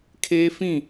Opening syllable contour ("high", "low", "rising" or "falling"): high